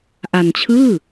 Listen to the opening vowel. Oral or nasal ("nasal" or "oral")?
oral